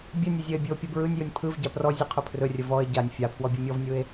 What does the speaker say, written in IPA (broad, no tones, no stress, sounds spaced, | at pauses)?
bʲ ə nʲ ə zʲ ə e̯ bʲ ɯ o̯ pʲ ɯ b ɹ ɯ nʲ j ɯ nʲ pʰ ɯ v ɟ a p r ɔ zʲ ɯ qʰ ɵ pʰ r ɵ rʲ ə v ɔ e̯ ɟ a nʲ fʲ a pʰ w ɔ bʲ ɯ mʲ ɔ v nʲ ɯ e̯